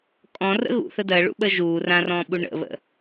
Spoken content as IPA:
kʼ ɔ̃ r ə̰ ɣ ṵ θ ə d ɜ ɭ ṵ ɓ ə ʒ uː r ã r ɔ̃ː ɓ u ɳ ə̰ β ə̰

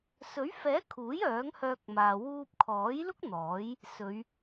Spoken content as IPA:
s ɵ˨˥ ɥ f ɛː˨˥ kʰ uː˨˥ j œː˨˥ ŋ h œː˧ k̚ m aː˨ w uː˧ p̚ kʰ ɔː˨˥ j l ʊ˥ k̚ n̪ ɔː˨˥ j | s ɵ˨˧ ɥ

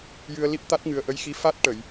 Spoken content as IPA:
j ɨ˧ ə̯ l i˦˥ p̚ t̪ a˦˥ t̚ ŋ ɨ˨˩ ə̯ ʔ ə˧˥ j x i˧˥ f a˦˥ t̚ ʈ ə˨˩˨ j

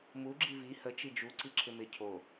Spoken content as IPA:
m u ɡ͡ǁ i v i h ə t͡ʃ i d͡ʒ u ǀ i ǁʰ ɪ m ɪ cʰ o

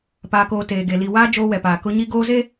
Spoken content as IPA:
p aː˨ k oː˨ t eː˨ ɡ e˨ l i˨ w aː˦ d͡ʒ oː˦ w ɛ˨ p aː˨ k ʊ˦ ɲ i˦ ɡ oː˦ z e˦

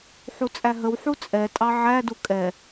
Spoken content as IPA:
ħ u t͡sʼ æ ɦ ə w ħ u t͡sʼ ɛ tʼ ɑ ʕ æ d u kʼ ɛ

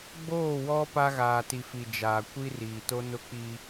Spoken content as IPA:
ɡ͡b oː˦˨ w ɔ˦ p a˦ ɣ aː˨ t i˨ f i˨ d͡ʒ aː˨ kʷ i˦ r iː˨ t o˦ n ʊ˦ k͡p iː˦

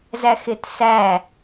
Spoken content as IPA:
z æ x ɪ t s æ

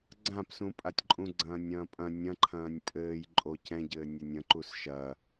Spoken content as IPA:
ɡ͡ǀ ã p s ũ pʼ a tʲ ǃʼ ũ ɡ͡ǀ ɐ̃ː nʲ ɐ̃ː pʼ ɐ̃ nʲ ɐ̃ ǃʰ ɐ̃ː nʲ pʼ ɘː j ǃʼ o c ɛ̃ ɟ ɘː nʲ ɐ nʲ ɐ̃ ǃ u s ʃ ɐ

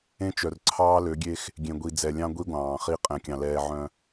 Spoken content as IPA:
ẽ˦ t͡ʃ œ˨ r ǀʰ ɑː˦ l ø˨˦ ɡʲ e˦ x | ɡʲ ẽ˨ ɡʷ i˨ d͡z ɛ˨ lʲ ɑ̃˦ ɡʷ i˦ ɡʷ ɑ̃ː˨ χ i˦ qʼ ɛ̃˨ kʲ ɑ̃˨ l ɛː˨ ʕ œ̃˨

